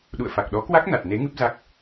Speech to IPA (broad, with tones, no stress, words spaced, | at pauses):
ɗṵ˧˨ə̯fa˨˩k̚ɗɔ˨˦kwa˦˥k̚ na˨˩t̚ ne˨˦ ŋɨ˦˥p̚za˦˥k̚